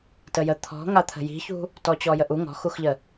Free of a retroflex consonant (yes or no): yes